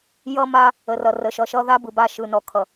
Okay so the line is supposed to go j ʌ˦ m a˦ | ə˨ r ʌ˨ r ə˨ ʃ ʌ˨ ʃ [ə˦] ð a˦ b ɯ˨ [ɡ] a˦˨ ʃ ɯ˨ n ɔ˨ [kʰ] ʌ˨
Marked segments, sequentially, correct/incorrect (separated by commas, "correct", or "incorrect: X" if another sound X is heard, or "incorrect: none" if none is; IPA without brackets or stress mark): incorrect: ʌ˦, incorrect: b, correct